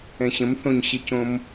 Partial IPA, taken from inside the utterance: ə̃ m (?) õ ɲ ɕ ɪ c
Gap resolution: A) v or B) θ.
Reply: B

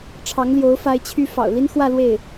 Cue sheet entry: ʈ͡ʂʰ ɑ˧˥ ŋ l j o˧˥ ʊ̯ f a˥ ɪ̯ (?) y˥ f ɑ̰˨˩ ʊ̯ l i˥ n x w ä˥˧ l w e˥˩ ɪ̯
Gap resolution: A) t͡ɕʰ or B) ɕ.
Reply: A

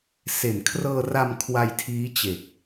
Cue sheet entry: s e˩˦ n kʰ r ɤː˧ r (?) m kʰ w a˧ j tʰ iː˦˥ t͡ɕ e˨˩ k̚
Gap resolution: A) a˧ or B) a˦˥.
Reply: A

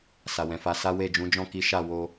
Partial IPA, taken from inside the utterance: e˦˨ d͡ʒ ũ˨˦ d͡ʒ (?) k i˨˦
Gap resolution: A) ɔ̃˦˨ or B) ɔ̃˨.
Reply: A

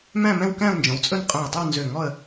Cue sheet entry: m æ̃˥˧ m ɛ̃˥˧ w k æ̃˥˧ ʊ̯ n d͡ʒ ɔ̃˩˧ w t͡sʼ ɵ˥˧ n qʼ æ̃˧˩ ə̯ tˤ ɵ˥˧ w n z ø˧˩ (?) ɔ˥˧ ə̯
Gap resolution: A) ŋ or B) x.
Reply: A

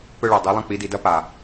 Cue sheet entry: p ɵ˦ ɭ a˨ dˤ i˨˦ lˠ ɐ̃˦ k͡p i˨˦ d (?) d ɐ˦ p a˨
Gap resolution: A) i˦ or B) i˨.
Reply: B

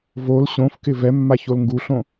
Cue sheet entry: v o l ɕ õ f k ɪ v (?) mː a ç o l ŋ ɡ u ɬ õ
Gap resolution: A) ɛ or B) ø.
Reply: A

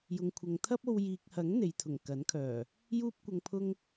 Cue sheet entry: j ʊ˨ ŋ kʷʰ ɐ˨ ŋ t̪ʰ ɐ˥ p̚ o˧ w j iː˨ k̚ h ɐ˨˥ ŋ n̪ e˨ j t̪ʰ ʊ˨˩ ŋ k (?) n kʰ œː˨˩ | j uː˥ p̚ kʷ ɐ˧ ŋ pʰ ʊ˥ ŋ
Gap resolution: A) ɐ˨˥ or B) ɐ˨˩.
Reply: A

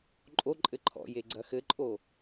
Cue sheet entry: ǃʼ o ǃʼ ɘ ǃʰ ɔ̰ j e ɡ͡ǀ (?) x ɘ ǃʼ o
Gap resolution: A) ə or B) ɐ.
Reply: B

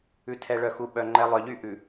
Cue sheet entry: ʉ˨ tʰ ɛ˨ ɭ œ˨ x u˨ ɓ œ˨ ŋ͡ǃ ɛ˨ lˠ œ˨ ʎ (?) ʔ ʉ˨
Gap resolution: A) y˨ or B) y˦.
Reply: B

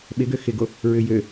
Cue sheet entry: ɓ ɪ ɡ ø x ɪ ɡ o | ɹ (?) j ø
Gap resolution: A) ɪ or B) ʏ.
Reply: B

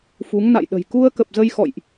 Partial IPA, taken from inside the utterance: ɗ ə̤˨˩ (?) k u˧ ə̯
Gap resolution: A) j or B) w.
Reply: A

